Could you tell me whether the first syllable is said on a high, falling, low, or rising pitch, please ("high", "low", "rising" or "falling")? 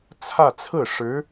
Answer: falling